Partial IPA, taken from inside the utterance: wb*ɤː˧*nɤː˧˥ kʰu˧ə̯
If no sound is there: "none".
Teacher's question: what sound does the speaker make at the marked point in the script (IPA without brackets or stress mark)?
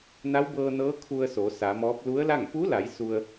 ɤː˧